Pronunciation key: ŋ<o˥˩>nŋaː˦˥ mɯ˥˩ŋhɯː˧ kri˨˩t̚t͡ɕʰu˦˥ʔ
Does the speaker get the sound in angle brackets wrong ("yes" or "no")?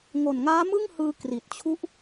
yes